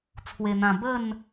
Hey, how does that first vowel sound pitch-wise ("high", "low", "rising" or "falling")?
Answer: low